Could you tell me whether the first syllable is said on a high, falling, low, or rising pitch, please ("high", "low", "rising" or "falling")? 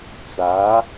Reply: rising